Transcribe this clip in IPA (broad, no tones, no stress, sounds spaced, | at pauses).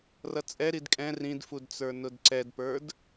r ʌ t͡sʼ ɛ ɾ i d kʼ ɛ̃ r ĩ d f u d t͡s ə˞ n ʊ d ǀ ɛ d p ə˞ d